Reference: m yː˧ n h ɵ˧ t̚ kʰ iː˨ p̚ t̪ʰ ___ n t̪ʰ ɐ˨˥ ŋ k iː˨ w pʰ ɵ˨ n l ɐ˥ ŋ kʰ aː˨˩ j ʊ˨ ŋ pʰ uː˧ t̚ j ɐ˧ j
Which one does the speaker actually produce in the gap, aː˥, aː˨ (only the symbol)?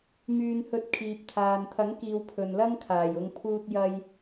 aː˨